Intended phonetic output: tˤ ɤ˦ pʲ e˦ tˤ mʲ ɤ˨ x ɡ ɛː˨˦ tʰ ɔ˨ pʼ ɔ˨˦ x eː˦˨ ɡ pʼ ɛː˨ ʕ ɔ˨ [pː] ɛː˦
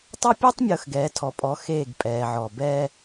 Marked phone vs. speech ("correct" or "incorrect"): incorrect